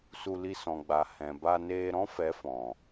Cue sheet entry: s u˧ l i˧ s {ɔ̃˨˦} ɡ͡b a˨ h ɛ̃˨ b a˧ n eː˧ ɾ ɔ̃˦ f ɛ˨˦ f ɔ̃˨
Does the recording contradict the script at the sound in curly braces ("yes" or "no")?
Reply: yes